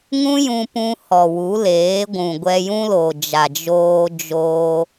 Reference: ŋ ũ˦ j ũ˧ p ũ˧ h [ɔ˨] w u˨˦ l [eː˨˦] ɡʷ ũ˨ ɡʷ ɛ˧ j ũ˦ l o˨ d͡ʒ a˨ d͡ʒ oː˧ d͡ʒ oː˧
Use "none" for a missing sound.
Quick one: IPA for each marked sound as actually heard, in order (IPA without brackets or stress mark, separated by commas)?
ɔ˨, eː˨˦